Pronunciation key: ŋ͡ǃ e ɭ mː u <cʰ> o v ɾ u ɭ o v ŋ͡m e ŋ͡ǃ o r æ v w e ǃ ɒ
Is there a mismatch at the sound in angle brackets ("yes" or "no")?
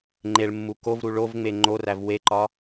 yes